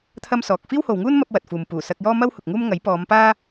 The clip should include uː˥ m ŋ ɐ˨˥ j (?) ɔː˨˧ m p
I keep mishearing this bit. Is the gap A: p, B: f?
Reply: A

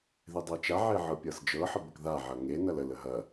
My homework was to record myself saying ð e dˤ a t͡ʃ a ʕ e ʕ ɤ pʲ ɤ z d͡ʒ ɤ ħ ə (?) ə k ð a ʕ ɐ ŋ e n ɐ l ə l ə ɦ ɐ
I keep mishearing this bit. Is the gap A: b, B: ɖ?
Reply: A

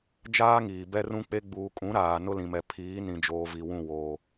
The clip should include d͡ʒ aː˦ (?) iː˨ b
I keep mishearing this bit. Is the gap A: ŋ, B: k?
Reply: A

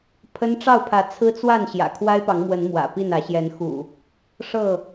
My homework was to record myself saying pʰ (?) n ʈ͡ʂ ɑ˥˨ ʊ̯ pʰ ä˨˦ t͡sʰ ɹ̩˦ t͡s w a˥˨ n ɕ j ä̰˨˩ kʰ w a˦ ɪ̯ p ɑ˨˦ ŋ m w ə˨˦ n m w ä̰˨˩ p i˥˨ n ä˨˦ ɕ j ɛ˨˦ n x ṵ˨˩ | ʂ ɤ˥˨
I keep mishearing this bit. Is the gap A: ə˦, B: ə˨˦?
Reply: A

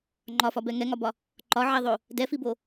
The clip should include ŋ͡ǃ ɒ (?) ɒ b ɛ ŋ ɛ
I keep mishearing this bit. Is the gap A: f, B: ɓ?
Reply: A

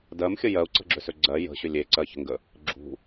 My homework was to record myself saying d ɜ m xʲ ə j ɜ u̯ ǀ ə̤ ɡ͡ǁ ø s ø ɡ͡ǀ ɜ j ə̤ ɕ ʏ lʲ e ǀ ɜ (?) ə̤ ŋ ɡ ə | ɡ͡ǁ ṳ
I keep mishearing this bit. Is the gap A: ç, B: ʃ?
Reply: A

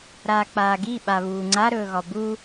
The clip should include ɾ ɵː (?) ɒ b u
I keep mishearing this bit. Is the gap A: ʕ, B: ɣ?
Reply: B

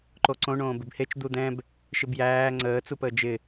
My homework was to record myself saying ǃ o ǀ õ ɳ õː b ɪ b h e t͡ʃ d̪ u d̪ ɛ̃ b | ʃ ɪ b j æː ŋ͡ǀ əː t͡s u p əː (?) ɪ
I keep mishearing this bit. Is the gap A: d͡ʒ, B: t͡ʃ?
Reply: A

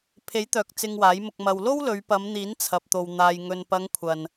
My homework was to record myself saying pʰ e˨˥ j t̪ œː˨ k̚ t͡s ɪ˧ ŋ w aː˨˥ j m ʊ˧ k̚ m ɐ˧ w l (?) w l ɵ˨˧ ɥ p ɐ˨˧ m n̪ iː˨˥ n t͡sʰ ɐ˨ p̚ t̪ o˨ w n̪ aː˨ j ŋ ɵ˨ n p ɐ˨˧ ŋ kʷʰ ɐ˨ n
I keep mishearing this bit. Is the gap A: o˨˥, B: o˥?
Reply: B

